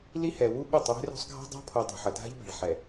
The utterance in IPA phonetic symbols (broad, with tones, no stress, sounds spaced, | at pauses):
l i˦ h ɛ˨ w u˦ ɓ ɛ˦˨ tˤ w e̤˦ r o̤˦ sˤ ɡʱ a̤˦ dˤ a̤˦ pʰ o˨ dˤ ṳ˨ ħ ʌ˨ dʱ a̤˦ ʎ b ɛ̤˨ ɭ ħ ɛ˨